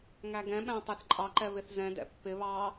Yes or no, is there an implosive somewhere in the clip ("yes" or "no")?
yes